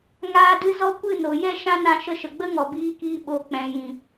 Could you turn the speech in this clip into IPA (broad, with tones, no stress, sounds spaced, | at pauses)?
ŋ aː˦ d ɨ˦ z ɔ˦ kʷ ɨ˦˨ n o˨ j ɛ˦ ʃ ã˦ n ã˧ ʃ ə˧ ʃ ə˨ ɡ͡b ə˦ ŋ ɔ˨ b iː˧ k iː˧ ɓ o˨ k͡p ɛ̃˨ j ĩ˨